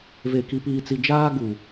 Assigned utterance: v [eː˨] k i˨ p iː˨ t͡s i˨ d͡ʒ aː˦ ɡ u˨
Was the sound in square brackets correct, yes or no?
no